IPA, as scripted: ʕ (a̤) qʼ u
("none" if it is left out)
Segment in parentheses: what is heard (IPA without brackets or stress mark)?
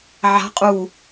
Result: a̤